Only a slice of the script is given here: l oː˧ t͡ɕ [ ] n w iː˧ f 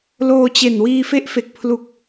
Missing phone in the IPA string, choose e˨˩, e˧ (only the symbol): e˨˩